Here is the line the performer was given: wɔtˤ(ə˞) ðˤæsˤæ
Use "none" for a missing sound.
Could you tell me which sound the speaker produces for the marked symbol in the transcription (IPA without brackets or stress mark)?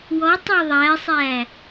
ə˞